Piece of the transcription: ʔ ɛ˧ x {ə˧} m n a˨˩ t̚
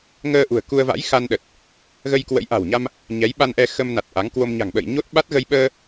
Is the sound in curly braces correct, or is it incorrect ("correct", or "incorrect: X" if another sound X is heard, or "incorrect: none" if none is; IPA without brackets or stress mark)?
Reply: correct